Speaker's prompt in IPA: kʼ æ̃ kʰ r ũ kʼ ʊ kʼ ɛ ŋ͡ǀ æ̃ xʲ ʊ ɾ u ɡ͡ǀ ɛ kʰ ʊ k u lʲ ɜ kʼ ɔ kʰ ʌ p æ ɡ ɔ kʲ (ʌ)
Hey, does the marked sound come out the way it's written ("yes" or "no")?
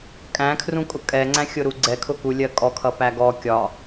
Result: no